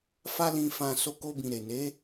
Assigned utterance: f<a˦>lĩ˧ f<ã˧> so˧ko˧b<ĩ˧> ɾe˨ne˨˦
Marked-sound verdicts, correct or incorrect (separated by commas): correct, correct, incorrect